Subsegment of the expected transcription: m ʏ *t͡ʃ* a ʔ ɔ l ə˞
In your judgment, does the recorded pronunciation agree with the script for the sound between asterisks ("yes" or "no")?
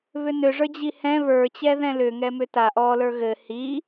no